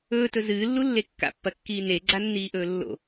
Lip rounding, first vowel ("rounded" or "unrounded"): rounded